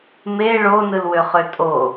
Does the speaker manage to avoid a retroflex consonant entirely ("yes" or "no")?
no